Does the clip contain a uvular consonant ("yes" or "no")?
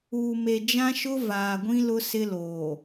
no